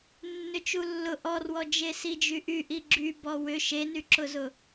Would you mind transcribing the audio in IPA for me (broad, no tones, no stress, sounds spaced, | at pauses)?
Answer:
nː ʏ t͡ʃ u lː ʊ ʔ ɔ r w ɔ d͡ʒ e s i d͡ʒ y ʔ y ʔ i ɡ͡ǁ y b ɔ w ʏ ʃ e n y ǁ ʊ z ʊ